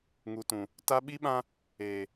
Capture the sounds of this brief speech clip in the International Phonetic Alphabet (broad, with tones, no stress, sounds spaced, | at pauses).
ŋ u˨ t ũ˨ | t a˦ ɓ i˦ ɓ ã˦ | eː˨